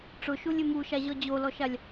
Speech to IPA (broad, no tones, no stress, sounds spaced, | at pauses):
ʈ͡ʂ ʊ ʃ u lʲ ɪ m u ʃ a ʑ ɔ d͡ʑ o l ɔ ʃ a lʲ